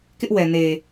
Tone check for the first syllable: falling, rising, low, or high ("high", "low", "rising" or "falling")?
high